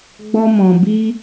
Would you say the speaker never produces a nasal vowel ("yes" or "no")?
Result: no